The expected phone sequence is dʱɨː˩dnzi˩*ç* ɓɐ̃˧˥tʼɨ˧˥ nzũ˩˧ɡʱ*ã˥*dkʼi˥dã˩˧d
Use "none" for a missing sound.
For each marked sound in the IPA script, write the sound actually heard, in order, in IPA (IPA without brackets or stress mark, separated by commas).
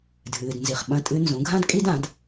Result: χ, ã˥